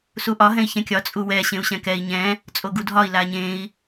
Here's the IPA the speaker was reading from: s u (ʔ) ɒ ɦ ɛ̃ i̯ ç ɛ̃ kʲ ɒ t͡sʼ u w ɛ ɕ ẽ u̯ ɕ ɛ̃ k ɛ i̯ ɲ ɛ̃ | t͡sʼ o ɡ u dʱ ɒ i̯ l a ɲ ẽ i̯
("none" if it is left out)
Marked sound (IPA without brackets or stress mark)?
ʔ